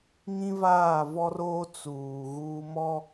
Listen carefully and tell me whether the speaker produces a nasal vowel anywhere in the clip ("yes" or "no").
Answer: yes